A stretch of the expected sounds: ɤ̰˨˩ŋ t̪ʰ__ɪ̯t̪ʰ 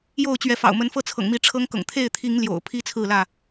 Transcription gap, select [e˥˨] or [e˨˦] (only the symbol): e˥˨